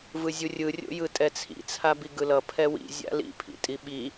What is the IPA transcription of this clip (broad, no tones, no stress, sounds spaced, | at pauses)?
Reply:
v ɯ zʲ u rʲ ɯ rʲ o̰ j ɯ tʼ ɛ t͡sʰ ḭ t͡sʰ a b i ɡ ɯ l ʌ pʰ ɛ w ḭ zʲ a̰ l ḭ pʰ ḭ tʼ i ɓ i